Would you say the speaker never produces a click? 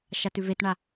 yes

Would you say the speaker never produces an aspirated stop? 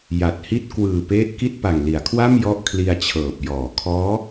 no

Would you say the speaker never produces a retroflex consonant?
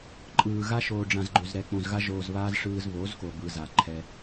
no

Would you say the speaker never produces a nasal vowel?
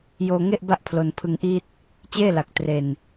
yes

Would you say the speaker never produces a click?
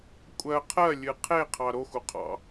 yes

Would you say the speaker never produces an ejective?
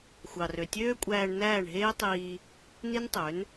no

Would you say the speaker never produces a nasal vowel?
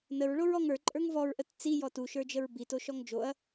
yes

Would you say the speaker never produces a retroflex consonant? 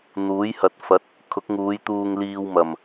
yes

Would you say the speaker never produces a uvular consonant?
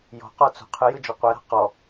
no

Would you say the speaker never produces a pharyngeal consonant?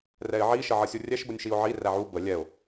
no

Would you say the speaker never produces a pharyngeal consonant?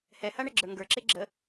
yes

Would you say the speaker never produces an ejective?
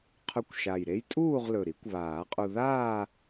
no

